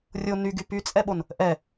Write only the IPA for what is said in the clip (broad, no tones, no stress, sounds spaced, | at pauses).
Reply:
rʲ o n y ɡ y p y t͡sʼ ɛ ɓ o n | ʔ ɛ